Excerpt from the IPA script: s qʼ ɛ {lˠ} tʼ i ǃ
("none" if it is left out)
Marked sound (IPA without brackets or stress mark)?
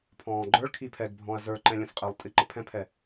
lˠ